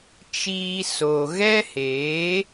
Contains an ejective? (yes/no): no